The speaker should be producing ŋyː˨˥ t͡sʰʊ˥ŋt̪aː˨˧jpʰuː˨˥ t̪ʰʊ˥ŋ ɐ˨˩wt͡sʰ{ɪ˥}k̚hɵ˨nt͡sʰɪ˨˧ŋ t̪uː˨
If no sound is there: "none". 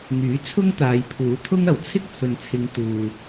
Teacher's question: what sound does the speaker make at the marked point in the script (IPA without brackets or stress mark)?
ɪ˥